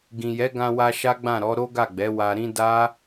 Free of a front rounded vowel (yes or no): yes